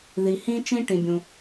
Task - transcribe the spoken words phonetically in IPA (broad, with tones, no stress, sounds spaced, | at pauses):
ð i˩ h ĩ˧ t͡ʃ ĩ˧ ʈ ĩ˩ bʲ ũ˩